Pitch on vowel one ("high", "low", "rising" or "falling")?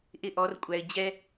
high